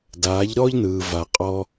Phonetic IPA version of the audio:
d aː˨˦ ʎ ɾ ɔː˦ ʎ n ɯː˨ v a˨ qʼ ɔ˧

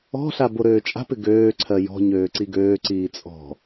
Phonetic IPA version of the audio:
ɔ̤ ɬ a b o ɾ øː t͡ʃʼ a̤ p ɪ ɡ øː ǀʰ ɜ j ɔ̤ ɲ øː ǀ i ɡ øː ǀ iː t͡sʼ ɔ̤

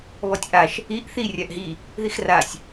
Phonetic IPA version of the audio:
β ɔ tʲ ʔ a ʃ | i ʔ θ i rʲ a ʔ ɦ i | ð i x r a sʲ

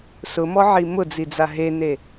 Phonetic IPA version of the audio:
s ʊ m ɔ ʕ i m ʊ d͡z i d͡z a ɦ e n e

